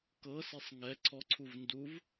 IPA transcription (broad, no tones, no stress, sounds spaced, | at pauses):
k ɤ s i sˤ ŋ ɛ ǀʰ ɔ ǀʰ u v n d u v